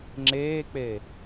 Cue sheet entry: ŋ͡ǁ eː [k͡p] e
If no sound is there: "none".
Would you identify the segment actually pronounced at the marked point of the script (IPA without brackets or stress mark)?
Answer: k͡p